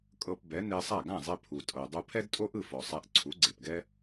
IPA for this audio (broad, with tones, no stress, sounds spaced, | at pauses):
kʼ ɤ˧ p b ɛ˩˥ n e˧ sˤ a˥˩ ɡ ã˥˩ zˤ e˧ pʰ u˩ tʼ ɤ˩ dˤ u˧ pʰ ɛ˥ d tʼ o˥ ʔ ɯ˥˩ f ɔ˩ sˤ ɛ˧ ʔ ǀʰ u˩˥ ɡ͡ǀ e˩ p ɡ ɛ˥